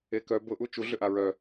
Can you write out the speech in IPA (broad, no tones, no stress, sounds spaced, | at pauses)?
e k œ b ʊ ʔ u t͡ʃ u ɮ ʏ ʔ a ɹ œ